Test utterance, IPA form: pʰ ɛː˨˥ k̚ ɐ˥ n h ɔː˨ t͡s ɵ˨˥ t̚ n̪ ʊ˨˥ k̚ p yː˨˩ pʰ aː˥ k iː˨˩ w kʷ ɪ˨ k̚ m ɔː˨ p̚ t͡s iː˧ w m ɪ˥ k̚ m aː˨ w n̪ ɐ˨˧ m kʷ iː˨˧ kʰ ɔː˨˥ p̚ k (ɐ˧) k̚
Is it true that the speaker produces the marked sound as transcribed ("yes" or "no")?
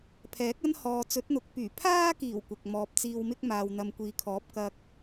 yes